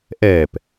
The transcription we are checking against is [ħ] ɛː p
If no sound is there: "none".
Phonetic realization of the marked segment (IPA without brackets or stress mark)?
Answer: ʔ